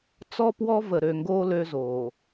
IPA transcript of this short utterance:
t͡s ɔ˦ p w ɔ˦ v ə˨ ɾ ø˨ ŋ ɡ o˦ l ø˦ z oː˨

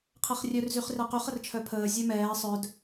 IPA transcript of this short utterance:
qʰ ɛ χ rʲ œ r z y χ r ɛ q y χ ə r t͡ʃʰ œ pʰ əː zʲ œ m ɛː sˤ œ d

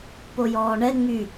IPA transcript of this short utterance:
p o j ɔː ɳ ɛ ŋ͡m y

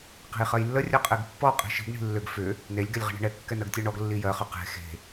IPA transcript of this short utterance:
q e̤ j χ ɜ j lː ə rʲ ɜ qʼ e ɡ pː ɔ qʼ i̤ ʃ i̤ ɡ ɳ i̤ lː ʏ ɡ f ʏ | n e lʲ ɡ ɛ lʲ ʁ i̤ ɳ e̤ ɳ ɛ kː ɛ n ɜ ɡ tʲ ɜ ɳ ɔ ɡ lː i j ɜ χ ʏ q e̤ x e̤

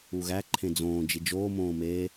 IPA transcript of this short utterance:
u ɣ æ ǃʰ ẽ d͡z õː d͡ʒ i d͡ʒ oː m õː m eː

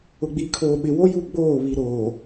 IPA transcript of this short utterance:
ʊ˨ ɡ͡b iː˨ kʰ oː˨ ɓ ɪ˨ w o˦ j u˦˨ ɡ͡b oː˦˨ β i˨ ɾ oː˨

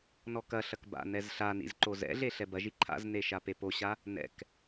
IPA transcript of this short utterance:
n ɔ k ɐ ɬ ɐ k b a̰ n ɛ z ɬ a n ḭ z ǃ o z ɛ̰ ɮ e ɬ ɛ b ɐ ʒ i ǃʰ a̰ z n e ʃ a p e p o ɕ a | n ɛ̰ k

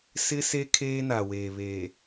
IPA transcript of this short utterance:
s ɪ˦ s e˦ kʰ eː˦ n a˨ w eː˨ β eː˨

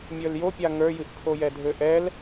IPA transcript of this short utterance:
mʲ ə˞ l j o pʲ a ŋ ə˞ j ɨ ʔ kʰ o j ɛ dʱ ø ʔ ɛ l

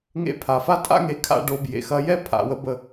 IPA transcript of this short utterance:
ŋ ḛ˧ pʰ a˨ f a˦ tʼ a̰˦ ŋ e˨˦ kʰ a̰˧ ɖ o˧ b j ḛ˨ x ɐ˧ j ɛ˦ pʰ a̰˧ w ə˦ b ə˦

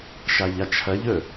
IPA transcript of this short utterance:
ʃ a ʎ a t͡ʃʰ ɐ ʎ ɵ

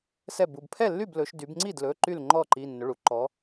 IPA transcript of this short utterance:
s ɛ˥˩ b u˩˧˩ b pʰ ɛ˥˩ lː y˥˩ b l ɵ˩˧ ʃ d y˩˧ b ŋ͡ǀ i˥˩ d l ɵ˩˧˩ ǃ y˥˩ l ŋ͡ǃ ɔ˥˩ ǃ i˩˧˩ nː ɵ˩˧˩ ɭ u˩˧ ǃ ɔ˩˧

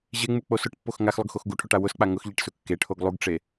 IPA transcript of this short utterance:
ʑ e ŋ͡m u k͡p o s ʊ ʈ pː o x ŋ a x lˠ ʊ ɡ x o x ɡ u ʈʰ o ʈ a w ʊ s k͡p a ŋ ʊ x ʎ e ʈ s ʊ kː e ʈʰ o ɡ lˠ u ɡ ʈ͡ʂ e

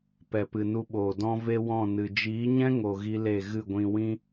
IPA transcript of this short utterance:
p ɛ˨ p ɨ˨ n u˧ ɓ oː˨ d ɔ̃˧ v e˧ w ɔ̃˦˨ n ɨ˨ d͡ʒ iː˨˦ ɲ ɛ̃˦ ŋ o˨ ɣ i˦ l e˦˨ ɣ ɨ˦˨ ɡʷ ĩ˧ w ĩ˦

